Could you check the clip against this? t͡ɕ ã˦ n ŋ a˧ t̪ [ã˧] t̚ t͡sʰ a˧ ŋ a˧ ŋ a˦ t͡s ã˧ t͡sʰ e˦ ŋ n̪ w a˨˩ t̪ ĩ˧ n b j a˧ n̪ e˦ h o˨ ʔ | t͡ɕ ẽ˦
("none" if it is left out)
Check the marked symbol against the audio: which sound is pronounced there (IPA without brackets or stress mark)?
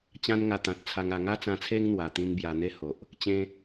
ã˨